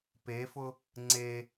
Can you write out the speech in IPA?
p e f ʊ | ŋ͡ǀ e

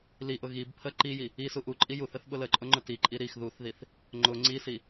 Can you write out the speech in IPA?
l i ʔ ʊ ɣ i b pʰ ə ǃ i j i | i s u ʔ u ǃʼ i j u θ ə θ ɓ ʊ l ə ǃʼ ʊ ŋ͡ǃ ʊ t i ǃʼ i ɾ i x ð u θ ð i θ | ŋ͡ǃ ʊ ŋ͡ǀ i s i

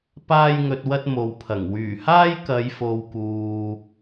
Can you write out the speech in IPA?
p aː˥ j ŋ ɵ˧ t̚ w ɐ˥ t̚ m o˨ w pʰ ɐ˨˩ ŋ w yː˨˩ h aː˥ j k ɐ˨˧ j f o˧ w k uː˧

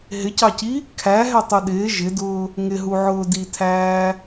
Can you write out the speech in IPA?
ɦ ɪ c ɑ c i | kʰ æ ɦ ɛ tˤ u ɗ ɪː ʒ ɪ d ʊː | ŋ ɪ ɦ u ʕ ʊː d i tʰ æː

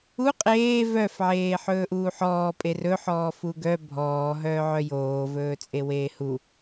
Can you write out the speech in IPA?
u qʼ eː v œ f ʕ eː ħ ɵː ʔ uː ħ ɔː pʼ e r ɵ ħ ɔː f u ɡ œ bʱ ɔː ɦ œː ʕ œ j oː v ɵː t͡sʼ e w eː h u

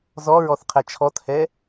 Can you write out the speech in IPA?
z ɔ ɹ ɔ θ qʰ ɛ t͡ʃʰ ɔ t h ɛ

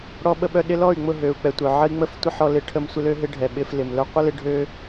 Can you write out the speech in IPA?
ɽ ɔ˧ ɓ ə˧ ɓ œ˧ ɗ ɪ˧ l ɔ˦˨ y̯ ŋ͡m ʊ˦˨ ɦ ø˨ u̯ k͡p ɛ˨ tʷ œ˨ ʕ ə˦ i̯ ŋ͡m ə˦ f tʷ ə˦ ħ ɔ˧ l ɪ˧ ʈʰ ə˧ m sʷ ɪ˦ l ø˦ ɦ ɪ˦ ɖʱ ɛ˨ ɓ ɪ˧ f l ɪ˨ m l œ˧ qʷ ə˦ l ɪ˧ ɖʱ ø˦

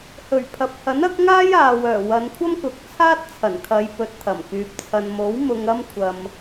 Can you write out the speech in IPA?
h ɵ˨˩ ɥ pʰ ɐ˨ p̚ h ɐ˨˥ n ɐ˨˥ k̚ ŋ aː˥ j aː˨ w œː˨˩ w ɐ˨˧ n kʷʰ ɐ˥ m k ʊ˨ k̚ t͡sʰ aː˥ t̚ t͡sʰ ɐ˨˩ n kʰ ɐ˨˧ j p ɵ˨˥ t̚ t̪ʰ ɐ˨˩ m k yː˨ p̚ t͡sʰ ɐ˨ n m o˨˥ w m ʊ˧ ŋ ɐ˥ m kʷʰ ɐ˧ m

